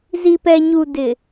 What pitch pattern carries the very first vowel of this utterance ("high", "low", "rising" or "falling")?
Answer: low